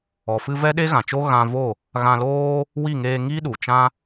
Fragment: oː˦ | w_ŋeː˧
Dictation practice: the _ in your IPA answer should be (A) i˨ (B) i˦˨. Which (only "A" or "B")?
B